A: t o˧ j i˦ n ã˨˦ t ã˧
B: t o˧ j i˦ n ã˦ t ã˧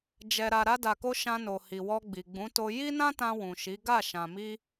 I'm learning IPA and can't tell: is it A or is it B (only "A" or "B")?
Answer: B